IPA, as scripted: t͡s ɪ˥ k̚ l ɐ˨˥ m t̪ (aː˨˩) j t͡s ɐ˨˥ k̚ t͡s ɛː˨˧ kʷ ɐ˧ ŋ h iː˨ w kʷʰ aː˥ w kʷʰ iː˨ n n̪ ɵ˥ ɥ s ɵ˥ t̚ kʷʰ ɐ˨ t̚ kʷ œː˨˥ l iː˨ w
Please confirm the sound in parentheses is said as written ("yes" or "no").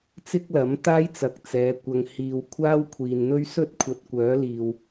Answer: no